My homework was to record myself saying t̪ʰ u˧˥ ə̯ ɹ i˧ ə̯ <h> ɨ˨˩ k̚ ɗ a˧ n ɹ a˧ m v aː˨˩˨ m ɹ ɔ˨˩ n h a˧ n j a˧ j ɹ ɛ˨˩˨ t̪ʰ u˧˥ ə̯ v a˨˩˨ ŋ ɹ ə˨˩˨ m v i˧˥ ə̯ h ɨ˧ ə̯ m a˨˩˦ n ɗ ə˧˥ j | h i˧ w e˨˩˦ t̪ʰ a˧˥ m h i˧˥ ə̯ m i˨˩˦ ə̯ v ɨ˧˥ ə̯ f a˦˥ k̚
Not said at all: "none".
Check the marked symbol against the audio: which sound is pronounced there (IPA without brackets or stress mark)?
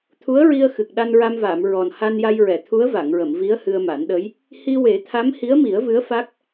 x